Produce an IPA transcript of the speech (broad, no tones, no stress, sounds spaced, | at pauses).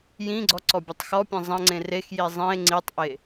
j ĩ ɡ͡ǀ ɔ ǀ ɔ bʲ ɐ tˤ x ɔ pʲ ẽ zˤ ɐ̃ ŋ͡ǀ ẽ r e x j i zˤ ĩ e̯ ŋ͡ǀ i tˤ ʔ e